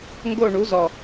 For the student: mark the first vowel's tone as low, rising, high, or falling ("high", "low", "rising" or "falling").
falling